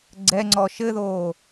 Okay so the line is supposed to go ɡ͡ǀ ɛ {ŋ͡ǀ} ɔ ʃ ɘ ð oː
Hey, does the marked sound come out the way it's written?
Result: yes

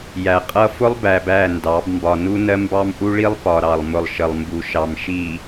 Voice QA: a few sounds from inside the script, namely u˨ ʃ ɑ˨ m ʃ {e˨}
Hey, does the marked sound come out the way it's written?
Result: no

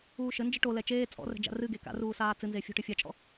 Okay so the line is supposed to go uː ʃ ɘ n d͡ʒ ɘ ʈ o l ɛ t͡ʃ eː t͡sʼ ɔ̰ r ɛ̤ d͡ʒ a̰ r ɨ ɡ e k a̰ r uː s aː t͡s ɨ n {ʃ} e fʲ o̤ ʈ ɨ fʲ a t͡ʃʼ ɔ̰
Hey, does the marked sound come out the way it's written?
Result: no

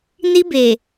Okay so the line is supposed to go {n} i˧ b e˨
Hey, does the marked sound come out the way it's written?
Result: yes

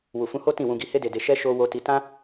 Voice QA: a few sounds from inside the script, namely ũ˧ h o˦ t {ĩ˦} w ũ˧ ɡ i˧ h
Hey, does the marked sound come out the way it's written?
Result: no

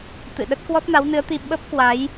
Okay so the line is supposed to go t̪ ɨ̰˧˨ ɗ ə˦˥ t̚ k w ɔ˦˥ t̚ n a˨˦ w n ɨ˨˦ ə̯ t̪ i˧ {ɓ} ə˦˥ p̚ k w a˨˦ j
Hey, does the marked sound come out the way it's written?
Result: yes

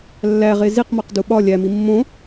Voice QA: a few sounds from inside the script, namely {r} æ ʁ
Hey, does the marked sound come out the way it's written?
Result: no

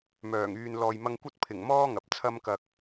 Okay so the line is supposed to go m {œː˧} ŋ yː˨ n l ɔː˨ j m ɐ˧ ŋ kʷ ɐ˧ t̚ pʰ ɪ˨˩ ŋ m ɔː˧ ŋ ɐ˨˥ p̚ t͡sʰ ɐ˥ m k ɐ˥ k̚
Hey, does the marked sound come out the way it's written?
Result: no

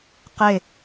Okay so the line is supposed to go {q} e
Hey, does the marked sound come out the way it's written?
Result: yes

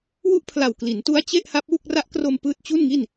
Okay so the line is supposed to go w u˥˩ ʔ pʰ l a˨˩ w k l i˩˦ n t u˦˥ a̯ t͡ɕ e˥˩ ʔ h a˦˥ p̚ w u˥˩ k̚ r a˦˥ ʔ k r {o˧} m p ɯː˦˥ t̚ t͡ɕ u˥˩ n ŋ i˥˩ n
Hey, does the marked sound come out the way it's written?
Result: yes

